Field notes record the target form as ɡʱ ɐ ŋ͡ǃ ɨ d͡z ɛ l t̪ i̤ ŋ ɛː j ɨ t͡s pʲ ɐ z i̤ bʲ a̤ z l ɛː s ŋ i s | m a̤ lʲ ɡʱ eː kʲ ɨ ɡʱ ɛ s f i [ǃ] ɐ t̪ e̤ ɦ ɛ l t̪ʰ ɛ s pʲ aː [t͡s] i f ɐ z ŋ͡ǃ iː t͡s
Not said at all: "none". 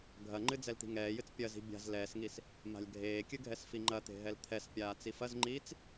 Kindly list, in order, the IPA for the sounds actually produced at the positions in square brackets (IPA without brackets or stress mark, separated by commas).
ŋ͡ǃ, t͡s